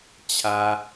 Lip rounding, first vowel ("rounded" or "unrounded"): unrounded